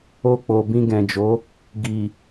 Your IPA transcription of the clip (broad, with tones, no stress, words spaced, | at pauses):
o˧k͡po˨ bĩ˧ɡɛ̃˨d͡ʒo˨˦ | ɡi˨